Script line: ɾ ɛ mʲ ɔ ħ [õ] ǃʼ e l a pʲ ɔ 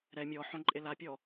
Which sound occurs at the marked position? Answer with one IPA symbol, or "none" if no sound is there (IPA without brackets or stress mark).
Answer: õ